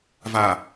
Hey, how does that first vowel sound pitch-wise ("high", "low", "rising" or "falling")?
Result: low